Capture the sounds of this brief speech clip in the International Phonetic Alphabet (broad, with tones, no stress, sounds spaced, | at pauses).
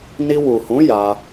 n i˧ w u˨ h ũ˨˦ j a˧